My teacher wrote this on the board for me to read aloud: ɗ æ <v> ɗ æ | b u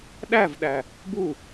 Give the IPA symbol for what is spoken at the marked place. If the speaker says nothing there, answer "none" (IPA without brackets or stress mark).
v